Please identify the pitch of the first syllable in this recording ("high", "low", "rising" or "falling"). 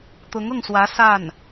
rising